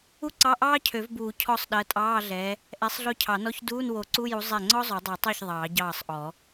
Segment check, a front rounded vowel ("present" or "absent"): present